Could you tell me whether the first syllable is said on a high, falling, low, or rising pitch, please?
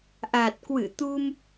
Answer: low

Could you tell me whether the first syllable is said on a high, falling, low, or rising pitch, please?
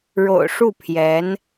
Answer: low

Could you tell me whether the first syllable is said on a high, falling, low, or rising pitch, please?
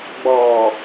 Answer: low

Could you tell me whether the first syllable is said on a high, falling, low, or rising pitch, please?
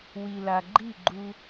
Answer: low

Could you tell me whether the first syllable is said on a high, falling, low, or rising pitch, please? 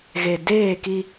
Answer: low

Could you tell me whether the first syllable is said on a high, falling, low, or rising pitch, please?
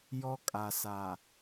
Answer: high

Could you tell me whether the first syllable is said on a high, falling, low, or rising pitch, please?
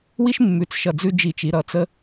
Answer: high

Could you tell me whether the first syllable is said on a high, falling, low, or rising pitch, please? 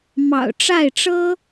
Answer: low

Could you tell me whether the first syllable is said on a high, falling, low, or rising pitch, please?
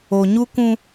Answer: low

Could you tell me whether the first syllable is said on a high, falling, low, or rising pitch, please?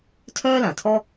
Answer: high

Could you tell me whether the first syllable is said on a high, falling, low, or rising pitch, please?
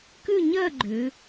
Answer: falling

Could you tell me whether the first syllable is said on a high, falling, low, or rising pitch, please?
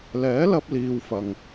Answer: rising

